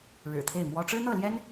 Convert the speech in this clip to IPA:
ɻ ɻ̩˨˩ t̪ʰ e˥˩ ɪ̯ m w ɔ˥ ʈ͡ʂ ɻ̩˥ n̪ ɤ˥˩ l j ɛ˥ n

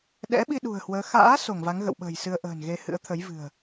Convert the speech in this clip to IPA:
ɗ ɛ̰˧˥ ɓ i˧ ɗ ṳ˨˩ ə̯ h w əː˨˦ x a̰ː˧˥ s o˧˩ ŋ v a˨˦ ŋ ɣ ə̰˧˨ w ɓ ə̤ː˨˩ j s ɨ˧ ə̯ ʔ ə̤ː˨˩ n ɣ e˧ h ɨ̰˧˥ ə̯ t̪ʰ ə˨˦ j v ɨ̤˨˩ ə̯

